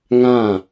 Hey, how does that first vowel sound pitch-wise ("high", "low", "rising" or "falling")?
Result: falling